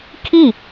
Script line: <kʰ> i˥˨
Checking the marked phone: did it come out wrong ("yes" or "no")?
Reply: no